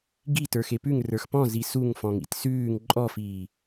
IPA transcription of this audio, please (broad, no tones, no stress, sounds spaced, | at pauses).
ɡ i t ə˞ x e p ʉ ŋ r ə˞ x p ɔ̃ z i s u ŋ f ɔ̃ ŋ ḭ t s ʉː ŋ ǃʼ ɔ f iː